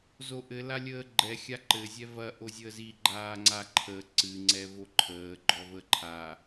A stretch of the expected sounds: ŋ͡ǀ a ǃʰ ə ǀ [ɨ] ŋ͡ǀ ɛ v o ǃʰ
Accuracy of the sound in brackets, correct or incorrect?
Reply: correct